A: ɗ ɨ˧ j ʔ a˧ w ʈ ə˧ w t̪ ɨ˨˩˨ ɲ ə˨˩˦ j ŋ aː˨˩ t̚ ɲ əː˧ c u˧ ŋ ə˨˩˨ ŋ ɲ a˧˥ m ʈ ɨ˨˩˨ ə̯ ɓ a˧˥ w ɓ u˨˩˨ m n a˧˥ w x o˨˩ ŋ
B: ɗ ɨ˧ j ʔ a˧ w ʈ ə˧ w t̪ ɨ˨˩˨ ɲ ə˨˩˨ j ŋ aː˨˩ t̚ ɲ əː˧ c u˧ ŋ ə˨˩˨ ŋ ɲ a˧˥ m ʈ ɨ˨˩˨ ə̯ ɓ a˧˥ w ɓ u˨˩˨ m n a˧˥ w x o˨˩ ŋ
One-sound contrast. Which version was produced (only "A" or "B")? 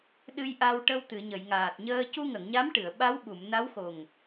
B